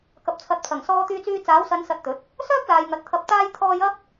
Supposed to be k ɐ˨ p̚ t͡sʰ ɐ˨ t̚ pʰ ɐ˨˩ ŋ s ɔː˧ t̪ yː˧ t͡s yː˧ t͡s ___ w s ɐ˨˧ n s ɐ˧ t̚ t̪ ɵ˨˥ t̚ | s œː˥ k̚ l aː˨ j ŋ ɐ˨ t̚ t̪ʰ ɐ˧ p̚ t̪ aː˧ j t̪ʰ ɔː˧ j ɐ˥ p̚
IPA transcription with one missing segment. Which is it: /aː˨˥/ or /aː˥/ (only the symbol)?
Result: aː˨˥